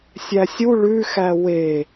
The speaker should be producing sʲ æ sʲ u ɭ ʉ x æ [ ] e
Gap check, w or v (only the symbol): w